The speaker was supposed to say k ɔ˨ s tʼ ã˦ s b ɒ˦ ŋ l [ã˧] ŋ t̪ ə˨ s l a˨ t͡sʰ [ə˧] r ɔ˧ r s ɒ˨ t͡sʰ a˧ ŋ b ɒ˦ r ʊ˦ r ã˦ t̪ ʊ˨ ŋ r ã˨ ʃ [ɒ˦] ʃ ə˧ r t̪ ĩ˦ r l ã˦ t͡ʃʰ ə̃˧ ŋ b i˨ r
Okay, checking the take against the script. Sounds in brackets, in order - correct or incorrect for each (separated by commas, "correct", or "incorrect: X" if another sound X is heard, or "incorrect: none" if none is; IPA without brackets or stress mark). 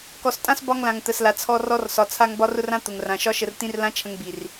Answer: incorrect: ã˨, incorrect: ɔ˧, correct